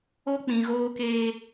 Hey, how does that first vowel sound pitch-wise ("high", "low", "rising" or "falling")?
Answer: high